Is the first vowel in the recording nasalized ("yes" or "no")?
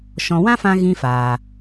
yes